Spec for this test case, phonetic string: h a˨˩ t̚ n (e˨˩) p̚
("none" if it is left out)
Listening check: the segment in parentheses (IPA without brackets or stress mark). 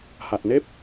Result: e˦˥